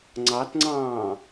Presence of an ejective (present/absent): absent